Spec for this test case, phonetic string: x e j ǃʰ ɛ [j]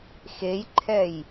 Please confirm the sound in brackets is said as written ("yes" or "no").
yes